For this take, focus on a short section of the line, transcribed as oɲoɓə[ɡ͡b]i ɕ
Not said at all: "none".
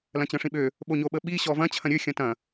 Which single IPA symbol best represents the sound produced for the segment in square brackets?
ɓ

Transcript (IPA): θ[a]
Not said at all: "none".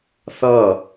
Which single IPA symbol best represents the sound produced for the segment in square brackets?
ʌ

